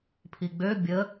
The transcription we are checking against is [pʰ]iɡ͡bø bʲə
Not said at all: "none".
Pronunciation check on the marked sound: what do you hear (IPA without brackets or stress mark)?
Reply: pʰ